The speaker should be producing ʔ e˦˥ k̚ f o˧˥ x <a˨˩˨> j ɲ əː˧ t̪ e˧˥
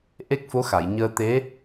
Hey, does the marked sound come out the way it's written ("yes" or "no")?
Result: yes